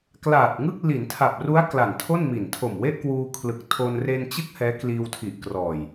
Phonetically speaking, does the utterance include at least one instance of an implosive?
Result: no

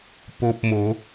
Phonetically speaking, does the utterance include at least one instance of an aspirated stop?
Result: no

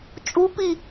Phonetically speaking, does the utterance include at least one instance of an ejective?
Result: yes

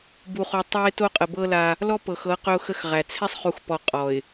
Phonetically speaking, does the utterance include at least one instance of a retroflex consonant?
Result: no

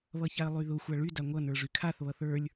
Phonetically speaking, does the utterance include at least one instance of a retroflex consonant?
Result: yes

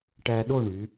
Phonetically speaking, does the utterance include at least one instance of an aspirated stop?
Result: no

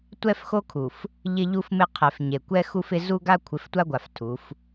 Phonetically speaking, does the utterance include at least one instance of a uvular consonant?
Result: yes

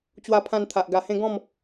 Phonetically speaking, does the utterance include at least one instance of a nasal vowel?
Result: yes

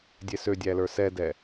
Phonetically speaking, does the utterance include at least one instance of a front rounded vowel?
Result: yes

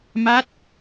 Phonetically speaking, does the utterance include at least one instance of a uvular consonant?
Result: no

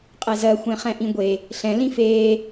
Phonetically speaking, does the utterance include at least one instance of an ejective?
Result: yes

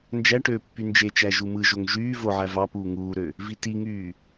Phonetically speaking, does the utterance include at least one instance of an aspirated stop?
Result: no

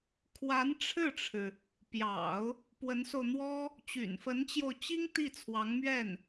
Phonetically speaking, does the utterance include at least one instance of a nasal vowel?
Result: no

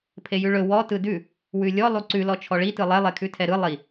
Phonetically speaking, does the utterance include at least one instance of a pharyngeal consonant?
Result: no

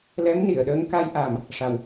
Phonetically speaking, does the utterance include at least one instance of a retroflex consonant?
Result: yes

